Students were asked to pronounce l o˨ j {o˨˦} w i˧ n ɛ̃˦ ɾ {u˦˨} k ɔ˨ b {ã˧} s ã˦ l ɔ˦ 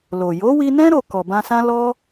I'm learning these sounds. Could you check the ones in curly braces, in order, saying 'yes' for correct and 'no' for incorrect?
yes, no, yes

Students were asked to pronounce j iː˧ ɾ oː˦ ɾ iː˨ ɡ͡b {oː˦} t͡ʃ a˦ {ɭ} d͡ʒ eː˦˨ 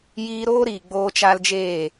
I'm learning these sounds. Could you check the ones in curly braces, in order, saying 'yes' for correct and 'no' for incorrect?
yes, no

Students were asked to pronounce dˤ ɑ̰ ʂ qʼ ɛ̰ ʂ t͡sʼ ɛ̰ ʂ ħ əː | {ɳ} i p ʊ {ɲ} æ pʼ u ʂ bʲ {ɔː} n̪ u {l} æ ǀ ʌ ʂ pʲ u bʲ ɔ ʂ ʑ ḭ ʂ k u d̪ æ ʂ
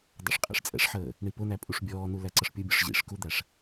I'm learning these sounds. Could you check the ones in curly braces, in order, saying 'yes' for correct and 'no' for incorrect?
yes, no, yes, yes

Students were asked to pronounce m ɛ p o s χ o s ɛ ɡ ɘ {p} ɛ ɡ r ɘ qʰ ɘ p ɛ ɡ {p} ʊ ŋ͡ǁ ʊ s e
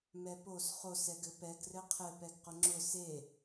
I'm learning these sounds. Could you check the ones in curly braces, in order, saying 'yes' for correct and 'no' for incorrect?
yes, no

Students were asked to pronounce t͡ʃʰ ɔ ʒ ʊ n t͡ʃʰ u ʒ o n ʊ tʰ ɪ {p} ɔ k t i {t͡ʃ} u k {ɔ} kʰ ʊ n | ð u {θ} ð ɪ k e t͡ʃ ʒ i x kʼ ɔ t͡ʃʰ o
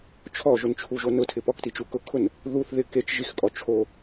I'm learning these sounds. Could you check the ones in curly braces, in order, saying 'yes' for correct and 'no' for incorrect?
yes, yes, no, yes

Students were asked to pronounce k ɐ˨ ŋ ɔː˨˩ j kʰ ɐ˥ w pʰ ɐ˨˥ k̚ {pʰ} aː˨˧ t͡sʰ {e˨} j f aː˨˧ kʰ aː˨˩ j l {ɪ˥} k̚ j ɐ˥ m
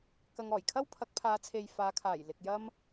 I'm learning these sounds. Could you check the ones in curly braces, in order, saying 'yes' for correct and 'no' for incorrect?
yes, yes, no

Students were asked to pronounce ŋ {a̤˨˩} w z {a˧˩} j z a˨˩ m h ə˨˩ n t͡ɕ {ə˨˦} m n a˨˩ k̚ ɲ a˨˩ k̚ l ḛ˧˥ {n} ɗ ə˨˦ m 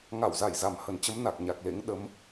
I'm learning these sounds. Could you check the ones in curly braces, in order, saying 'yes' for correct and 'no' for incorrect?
no, yes, yes, no

